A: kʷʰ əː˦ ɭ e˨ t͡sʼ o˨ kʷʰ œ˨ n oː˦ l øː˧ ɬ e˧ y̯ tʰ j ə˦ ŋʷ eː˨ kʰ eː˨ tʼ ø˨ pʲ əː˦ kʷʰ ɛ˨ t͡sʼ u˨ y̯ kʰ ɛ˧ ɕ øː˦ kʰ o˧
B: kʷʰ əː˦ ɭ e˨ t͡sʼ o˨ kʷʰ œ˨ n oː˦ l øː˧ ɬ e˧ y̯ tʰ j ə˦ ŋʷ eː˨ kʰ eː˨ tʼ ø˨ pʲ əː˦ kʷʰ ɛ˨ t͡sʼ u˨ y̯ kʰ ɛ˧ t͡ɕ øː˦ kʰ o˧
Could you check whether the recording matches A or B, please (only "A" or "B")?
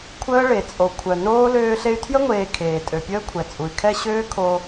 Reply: A